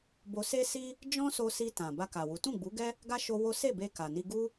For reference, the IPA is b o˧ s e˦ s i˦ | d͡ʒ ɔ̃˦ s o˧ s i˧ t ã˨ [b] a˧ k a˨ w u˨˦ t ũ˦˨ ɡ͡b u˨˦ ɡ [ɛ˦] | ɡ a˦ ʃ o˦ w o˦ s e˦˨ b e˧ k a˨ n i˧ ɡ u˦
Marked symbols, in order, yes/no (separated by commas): yes, yes